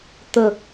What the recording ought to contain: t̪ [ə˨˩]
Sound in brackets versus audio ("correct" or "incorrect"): incorrect